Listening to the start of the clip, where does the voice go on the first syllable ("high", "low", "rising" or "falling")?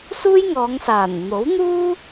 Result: high